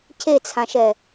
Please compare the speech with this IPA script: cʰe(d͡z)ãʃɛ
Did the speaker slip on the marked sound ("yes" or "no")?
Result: yes